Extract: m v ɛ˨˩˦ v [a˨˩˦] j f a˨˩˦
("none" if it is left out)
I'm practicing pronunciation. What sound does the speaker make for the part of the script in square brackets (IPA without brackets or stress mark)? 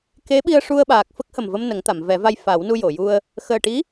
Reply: a˧